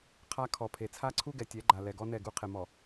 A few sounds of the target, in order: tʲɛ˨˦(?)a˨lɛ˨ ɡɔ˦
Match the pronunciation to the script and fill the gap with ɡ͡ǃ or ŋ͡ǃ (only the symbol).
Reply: ɡ͡ǃ